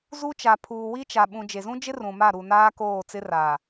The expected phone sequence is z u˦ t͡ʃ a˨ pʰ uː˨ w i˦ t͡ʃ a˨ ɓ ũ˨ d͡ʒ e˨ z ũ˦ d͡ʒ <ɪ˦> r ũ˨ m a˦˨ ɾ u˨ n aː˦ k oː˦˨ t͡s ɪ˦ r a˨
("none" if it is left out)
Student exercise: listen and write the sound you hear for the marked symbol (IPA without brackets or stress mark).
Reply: ɪ˦